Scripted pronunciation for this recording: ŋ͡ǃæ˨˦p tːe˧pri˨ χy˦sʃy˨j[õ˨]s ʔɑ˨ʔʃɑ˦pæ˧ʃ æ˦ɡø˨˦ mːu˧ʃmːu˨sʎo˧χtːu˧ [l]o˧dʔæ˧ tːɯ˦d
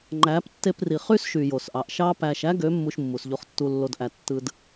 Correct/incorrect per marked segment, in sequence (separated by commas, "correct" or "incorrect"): incorrect, incorrect